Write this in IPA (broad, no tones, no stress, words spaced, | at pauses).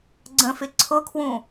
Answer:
ɡ͡ǀə̃fɪ ǀʰʊkʰwũ